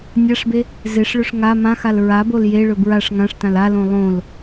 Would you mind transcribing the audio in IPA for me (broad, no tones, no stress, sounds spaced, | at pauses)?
nʲ a ʂ b e | z e ʂ ɭ ɵ ʂ ŋ a m ã x a l ɹ a b o l j e ɭ ɵ b ɹ a ʂ ŋ ã ʂ t ã l a l õ lˠ õ l